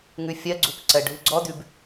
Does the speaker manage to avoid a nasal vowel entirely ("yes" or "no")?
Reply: yes